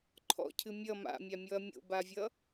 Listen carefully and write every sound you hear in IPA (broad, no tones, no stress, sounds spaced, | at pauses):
ǃʰ ɔ̰ cʰ ɨ mʲ ʌ m a̰ mʲ a mʲ ɔ ɐ̯ mʲ o̰ b a vʲ ʌ